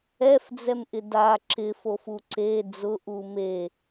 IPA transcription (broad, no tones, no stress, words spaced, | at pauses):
ɛfd͡zɛmʔɪ da ǁɪfofu ǀe d͡zʊʔu me